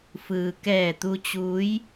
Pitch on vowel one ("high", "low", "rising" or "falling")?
low